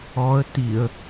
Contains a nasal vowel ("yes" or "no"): no